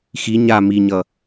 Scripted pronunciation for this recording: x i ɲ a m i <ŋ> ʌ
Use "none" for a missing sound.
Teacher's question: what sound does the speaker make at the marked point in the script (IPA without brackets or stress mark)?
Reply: ɲ